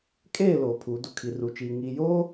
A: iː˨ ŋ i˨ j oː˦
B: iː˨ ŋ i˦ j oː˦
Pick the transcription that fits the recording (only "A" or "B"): A